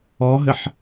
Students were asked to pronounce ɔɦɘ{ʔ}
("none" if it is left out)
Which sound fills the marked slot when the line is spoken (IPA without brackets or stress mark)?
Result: ħ